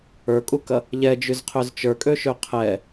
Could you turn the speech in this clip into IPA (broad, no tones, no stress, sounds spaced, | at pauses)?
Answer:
ə˞ kʼ u k ɐ | ʎ ɛ d͡ʒ y z qʰ ø z t͡ʃ ə˞ kʼ ø ʃ ø qʰ ɛ